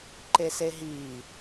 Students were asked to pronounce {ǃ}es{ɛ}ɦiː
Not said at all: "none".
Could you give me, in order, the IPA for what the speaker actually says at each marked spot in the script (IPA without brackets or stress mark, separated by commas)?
ǃ, e